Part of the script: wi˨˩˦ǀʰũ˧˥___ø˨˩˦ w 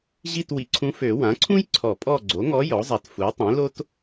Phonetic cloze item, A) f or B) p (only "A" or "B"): A